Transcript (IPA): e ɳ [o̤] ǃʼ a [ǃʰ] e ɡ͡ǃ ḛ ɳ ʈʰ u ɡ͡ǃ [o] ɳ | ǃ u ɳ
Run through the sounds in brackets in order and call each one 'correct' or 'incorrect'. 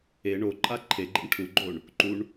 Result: incorrect, correct, correct

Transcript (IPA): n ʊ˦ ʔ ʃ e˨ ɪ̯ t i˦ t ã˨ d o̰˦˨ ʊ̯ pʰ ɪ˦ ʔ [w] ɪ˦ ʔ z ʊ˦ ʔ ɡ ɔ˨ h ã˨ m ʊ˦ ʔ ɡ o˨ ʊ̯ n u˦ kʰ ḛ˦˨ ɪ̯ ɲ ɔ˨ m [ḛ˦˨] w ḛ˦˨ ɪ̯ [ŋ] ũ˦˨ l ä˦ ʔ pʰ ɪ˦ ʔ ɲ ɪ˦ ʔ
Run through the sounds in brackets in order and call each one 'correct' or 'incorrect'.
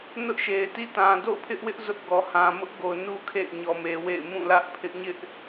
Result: correct, incorrect, incorrect

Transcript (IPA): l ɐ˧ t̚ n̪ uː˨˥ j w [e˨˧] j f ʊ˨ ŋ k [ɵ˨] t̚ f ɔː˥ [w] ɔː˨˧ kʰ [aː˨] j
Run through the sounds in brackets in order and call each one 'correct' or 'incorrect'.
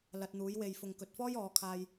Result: incorrect, correct, incorrect, incorrect

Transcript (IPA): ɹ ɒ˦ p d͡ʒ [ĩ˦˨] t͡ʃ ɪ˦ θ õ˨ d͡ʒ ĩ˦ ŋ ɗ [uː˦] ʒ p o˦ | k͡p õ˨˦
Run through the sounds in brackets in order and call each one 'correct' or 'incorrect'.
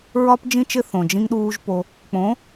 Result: incorrect, correct

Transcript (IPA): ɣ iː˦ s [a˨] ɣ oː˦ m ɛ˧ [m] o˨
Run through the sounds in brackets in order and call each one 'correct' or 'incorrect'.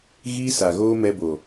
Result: correct, incorrect

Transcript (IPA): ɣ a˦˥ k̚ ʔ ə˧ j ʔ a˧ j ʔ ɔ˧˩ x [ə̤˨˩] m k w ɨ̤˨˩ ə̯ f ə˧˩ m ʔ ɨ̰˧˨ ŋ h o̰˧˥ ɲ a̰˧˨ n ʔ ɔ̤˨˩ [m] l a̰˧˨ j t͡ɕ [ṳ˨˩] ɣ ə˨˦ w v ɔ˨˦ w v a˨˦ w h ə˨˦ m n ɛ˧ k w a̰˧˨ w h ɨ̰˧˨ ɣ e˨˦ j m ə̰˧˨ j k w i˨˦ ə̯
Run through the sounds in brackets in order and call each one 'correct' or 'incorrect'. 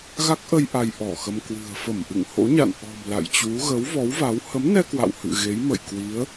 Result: incorrect, correct, incorrect

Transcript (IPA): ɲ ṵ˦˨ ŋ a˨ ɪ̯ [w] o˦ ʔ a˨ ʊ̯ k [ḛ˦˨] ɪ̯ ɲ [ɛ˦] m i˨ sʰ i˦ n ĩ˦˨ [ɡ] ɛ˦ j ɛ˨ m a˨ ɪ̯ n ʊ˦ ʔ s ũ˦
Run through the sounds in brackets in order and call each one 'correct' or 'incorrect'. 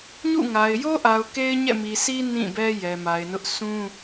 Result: incorrect, incorrect, incorrect, incorrect

